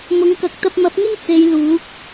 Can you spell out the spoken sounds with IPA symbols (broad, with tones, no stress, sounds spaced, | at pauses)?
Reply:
m ʊ˨˥ ŋ k ɐ˨˥ k̚ t̪ ɐ˧ p̚ m ɐ˨˥ p̚ ŋ ɪ˥ ŋ t͡s e˨˧ j l uː˨˥ k̚